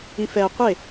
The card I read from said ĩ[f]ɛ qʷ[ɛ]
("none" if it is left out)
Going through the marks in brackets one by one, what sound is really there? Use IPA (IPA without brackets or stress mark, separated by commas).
f, e